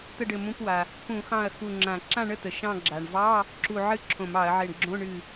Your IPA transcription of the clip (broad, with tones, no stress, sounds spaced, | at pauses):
t̪ ə˥˨ ɖ ɘ˧˩ m ũ˧˥˧ p w a˩ | p ũ˧˩˧ x ɑ̃˧˩ ɐ̯ x u˧˩ ŋ͡ǁ ã˧˩˧ ǁ ã˥˨ ɳ ə˥˨ t̪ ə˩ ʃ ɑ̃˥˨ ɡ͡ǁ a˩ ɳ v ɑ˧˥˧ | ǁ u˧˩ ʕ ɨ˥˨ ǁʰ õ˧˩˧ m ɑ˧˩˧ ɐ̯ ʕ e˧˩ ɳ ɡ͡ǁ õ˧˥˧ ɳ ɨ˧˩